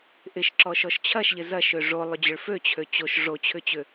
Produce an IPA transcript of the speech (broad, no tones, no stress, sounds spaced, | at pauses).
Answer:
ʔ ɪ ʃ ǁ ɔ ʃ ɔ ʃ t͡ɕʰ ɐ ʃ ʎ ɪ z ɐ ʃ ø ʐ o lˠ ʏ d͡ʑ ʏ ɭ f ø t͡ɕʰ ø t͡ɕ o ʃ ʐ o t͡ɕʰ ʏ t͡ɕ ʏ